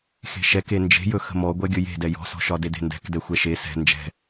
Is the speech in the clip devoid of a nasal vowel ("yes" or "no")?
yes